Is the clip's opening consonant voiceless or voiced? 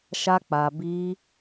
voiceless